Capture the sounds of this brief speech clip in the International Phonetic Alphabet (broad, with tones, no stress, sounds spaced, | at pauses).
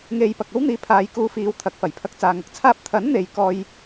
ŋ e˧ j p ɐ˨ k̚ ɐ˥ w n̪ iː˨ pʰ aː˨˧ j k uː˨˧ f iː˨˧ w t̪ʰ ɐ˨˥ k̚ f ɐ˨˩ j pʰ ɐ˧ k̚ t͡s aː˨ ŋ ɐ˨ k̚ t͡sʰ aː˥ p̚ t̪ʰ ɐ˨˥ n n̪ e˨ j k ɔː˧ j